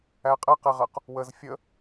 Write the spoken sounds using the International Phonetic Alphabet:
æ qʼ æ q ɛ ʁ ɜ q | w ə z fʲ ə

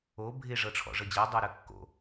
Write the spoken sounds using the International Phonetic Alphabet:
o bʱ ɪ ʐ ɤ ʈ͡ʂʰ ɔ̰ ʐ ɤ d͡ʑ ɜ dˤ o ɾ ə kː o̰

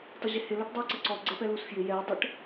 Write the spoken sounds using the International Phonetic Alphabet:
tˤ ɪ ʑ ɪ h ɪ l ɔ ʈ dˤ u ə̯ ǀ ə ǀ ɔ ɡ͡ǀ ɛ p ɛ l u s f j ɪ j ɛ ɪ̯ dˤ ə ʈ

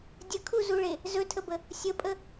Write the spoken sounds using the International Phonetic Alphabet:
dʲ ə kʰ u z u ɭ e | z ɵ tʰ ə b ə | sʲ ə pʼ ə

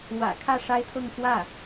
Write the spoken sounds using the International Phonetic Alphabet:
w ä̰˨˩ kʰ ä˥˩ ʂ a˥ ɪ̯ t̪ʰ ɤ˥˧ ŋ f w ä˥˩

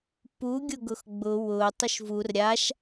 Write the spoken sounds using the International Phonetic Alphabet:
p u ɡʲ ʊ ɡ ʊ x ɡ͡b ʊ w ʊ tˤ ʊ ʃ v u r ɾʲ a ʃ

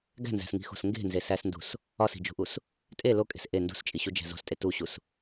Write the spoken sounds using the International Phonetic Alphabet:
ɡ æ̤ n z æ̤ s ŋ i̤ x o̤ s ŋ ɡ e̤ n z e s æ s n d ṳ s | ɒ s i̤ d͡ʒ ṳ ʔ u s | tʼ e l o kʼ e̤ s ʔ e n d ṳ s t͡ʃʼ i ɕ u d͡ʒ æ̤ z o̤ s tʼ e t u ɕ u s

